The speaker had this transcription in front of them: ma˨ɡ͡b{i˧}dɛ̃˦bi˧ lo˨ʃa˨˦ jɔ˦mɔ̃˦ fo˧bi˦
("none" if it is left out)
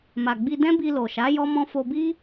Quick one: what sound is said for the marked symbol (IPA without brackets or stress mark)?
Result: i˧